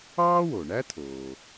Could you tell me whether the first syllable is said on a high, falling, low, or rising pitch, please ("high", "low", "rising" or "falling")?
high